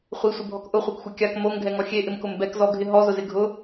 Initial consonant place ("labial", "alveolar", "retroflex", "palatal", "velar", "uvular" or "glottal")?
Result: uvular